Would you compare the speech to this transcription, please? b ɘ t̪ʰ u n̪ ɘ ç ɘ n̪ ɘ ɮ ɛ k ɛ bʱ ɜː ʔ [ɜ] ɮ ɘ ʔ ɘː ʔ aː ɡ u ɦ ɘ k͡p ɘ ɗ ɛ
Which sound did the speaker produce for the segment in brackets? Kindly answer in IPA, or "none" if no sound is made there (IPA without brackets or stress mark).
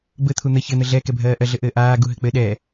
ɜ